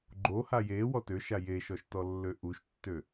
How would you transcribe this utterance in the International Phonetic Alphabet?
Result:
ɡ͡ǃ o h a j e w ɔ t ø ʃ a j e ʃ ɔ ʃ t ɔ lː ø ʔ u ʃ tː ø

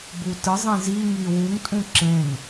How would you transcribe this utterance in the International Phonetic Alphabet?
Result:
b u t ɯ zˤ ĩ z i ŋ i w u ŋ tʼ ũ ǁ ẽ ŋ

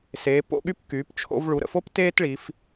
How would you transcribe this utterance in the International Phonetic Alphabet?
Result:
s eː˩˧ p o̰˥˧ ɠ y˥˧ p k yː˩˧ p t͡ʃʰ o̰˧ v ɭ u˩˧ ɾ ə̰˧˩ f o˥ p t eː˥ t ɭ i˩˧ f

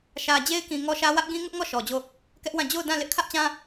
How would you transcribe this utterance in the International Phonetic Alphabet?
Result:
ʃ ä˨ d͡ʑ e˦ ɪ̯ k ĩ˨ ŋ ɔ˦ ʃ ä˦ w ä˦ ʔ ɡ ĩ˦ ŋ ʊ˦ ʔ ŋ ɔ˦˨ ʃ ɔ˨ d͡ʑ o˦˨ | k ɛ˦ ʔ w ã˦˨ d͡ʑ o˦˨ ʊ̯ d ã˦˨ l ɪ˦ ʔ kʰ ä˦ ʔ t͡ɕ ã˦

